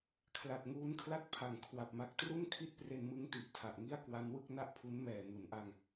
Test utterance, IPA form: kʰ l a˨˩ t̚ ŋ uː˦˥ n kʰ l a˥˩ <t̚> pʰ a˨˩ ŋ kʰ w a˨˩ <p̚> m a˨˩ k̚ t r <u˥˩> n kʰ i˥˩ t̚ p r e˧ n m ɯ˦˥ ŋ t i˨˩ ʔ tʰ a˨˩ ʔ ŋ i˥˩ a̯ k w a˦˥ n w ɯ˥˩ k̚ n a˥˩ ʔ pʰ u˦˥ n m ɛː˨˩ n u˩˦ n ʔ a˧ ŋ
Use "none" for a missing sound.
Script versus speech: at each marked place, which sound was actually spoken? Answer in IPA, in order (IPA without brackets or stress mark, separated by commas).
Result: t̚, p̚, u˥˩